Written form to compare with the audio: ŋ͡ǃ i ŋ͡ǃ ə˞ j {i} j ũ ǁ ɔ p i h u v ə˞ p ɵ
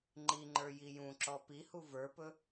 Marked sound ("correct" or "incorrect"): correct